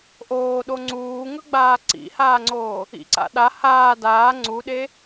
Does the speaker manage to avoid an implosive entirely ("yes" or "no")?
no